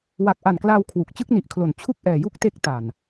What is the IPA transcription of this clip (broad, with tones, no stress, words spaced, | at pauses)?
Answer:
wa˨˩k̚ʔa˨˩nklaː˧w kʰwu˨˩k̚ t͡ɕɯ˥˩k̚ni˨˩ʔkʰlo˨˩n t͡ɕʰu˥˩k̚ʔɛː˨˩ju˥˩k̚ te˦˥k̚ta˨˩n